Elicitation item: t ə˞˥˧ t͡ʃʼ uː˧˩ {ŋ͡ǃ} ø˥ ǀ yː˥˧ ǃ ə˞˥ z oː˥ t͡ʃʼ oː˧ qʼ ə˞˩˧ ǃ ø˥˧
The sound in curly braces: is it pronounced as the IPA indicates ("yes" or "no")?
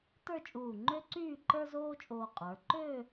yes